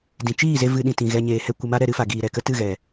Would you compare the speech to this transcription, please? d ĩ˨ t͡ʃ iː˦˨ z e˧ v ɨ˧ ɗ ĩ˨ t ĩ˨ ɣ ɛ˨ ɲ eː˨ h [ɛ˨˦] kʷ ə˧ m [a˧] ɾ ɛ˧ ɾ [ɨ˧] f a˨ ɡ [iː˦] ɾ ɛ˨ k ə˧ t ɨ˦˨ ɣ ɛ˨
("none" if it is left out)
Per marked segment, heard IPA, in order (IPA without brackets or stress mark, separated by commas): ɛ˧, a˦, ɨ˧, iː˨